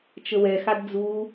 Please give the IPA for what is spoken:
t͡ʃ ə w ɛ x a d d͡z u

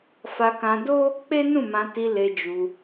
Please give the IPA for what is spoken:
f a˧ k ã˧ d o˦ | k͡p e˦ n ũ˦˨ m ã˧ t i˧ l e˧ d͡ʒ u˧

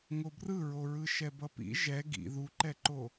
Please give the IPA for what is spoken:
ŋ o b r ɯ ɹ o ɹ ɯ ʃ ɛ b ʌ p ḭ ʒ ɛ ɡ ḭ ð u ǃ ɛ ǃ o

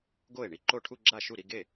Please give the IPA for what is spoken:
ɡ o˥˩ e̯ ɳ i˥˧ ǃ o˥˩ ʈʰ u˥˧ ɡ͡ǁ a˥˩ ʃ u˥˩ ɾ i˥˧ ɡ e˥˩

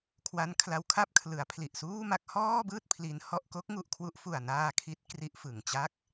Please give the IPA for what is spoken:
kʰ w a˦˥ n kʰ l a˦˥ w kʰ a˥˩ p̚ kʰ l ɯ˩˦ a̯ pʰ l i˨˩ ʔ s uː˥˩ m a˥˩ k̚ h ɔː˥˩ b ɯː˥˩ t̚ pʰ l i˦˥ n h ɔ˥˩ ʔ k o˦˥ k̚ ŋ u˨˩ ʔ kʰ w u˦˥ ʔ f u˨˩ a̯ n aː˧ kʰ i˦˥ t̚ k r i˦˥ ʔ f ɯ˨˩ ŋ t͡ɕ a˥˩ k̚

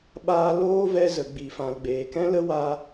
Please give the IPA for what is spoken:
ɓ aː˧ l oː˦ v ɛ˦ z ə˨ ɡ͡b i˨ f ã˨ l ɡ͡b eː˨ k ɛ̃˦ l ə˦ w a˦

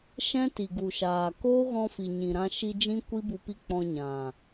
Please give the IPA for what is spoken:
ʃ ɛ̃˦ t i˨ ɡ u˨ ʃ aː˨ k oː˦ ɣ ɔ̃˧ f i˨ ɲ ĩ˨ ɾ ã˧ ʃ i˧ d͡ʒ ĩ˦ kʷ i˦ b u˧ p i˦ k͡p ɔ̃˧ ɲ ã˨

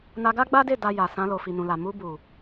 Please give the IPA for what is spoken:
n a˧ ɡ a˦ ɡ͡b a˦ d e˦˨ d a˧ j a˨ s ã˧ l o˨ f i˨ n ũ˨ l a˨ m u˧ b u˨

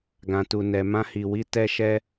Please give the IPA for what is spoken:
ɡ ã˨ t u˨ n ɛ˨ m ã˧ h i˨ w i˧ t ɛ˧ ʃ ɛ˧

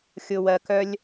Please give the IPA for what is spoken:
xʲ ʊ˨ w ɜ˨ k œ˧ lʲ

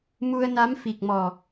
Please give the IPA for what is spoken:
m u˧ ə̯ n a˧˥ m f i˨˩ k̚ m ɔ˨˩

